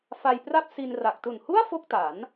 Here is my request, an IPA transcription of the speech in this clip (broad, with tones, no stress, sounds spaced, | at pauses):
f a˧ j p r a˥˩ p̚ s i˧ n r a˨˩ k̚ t u˨˩ n h u˥˩ a̯ f o˥˩ k̚ t a˩˦ n